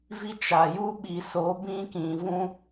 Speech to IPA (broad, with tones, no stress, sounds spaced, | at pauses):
v i˦ t͡ʃ a˨ j u˦ ɓ i˨ s o˨˦ b ĩ˦ k ĩ˨ v ũ˦